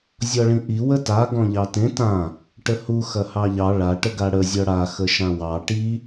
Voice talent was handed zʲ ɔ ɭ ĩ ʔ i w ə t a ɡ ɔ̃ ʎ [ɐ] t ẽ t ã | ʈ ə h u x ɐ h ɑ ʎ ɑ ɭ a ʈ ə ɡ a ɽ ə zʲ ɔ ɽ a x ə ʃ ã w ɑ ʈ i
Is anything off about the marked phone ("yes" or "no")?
yes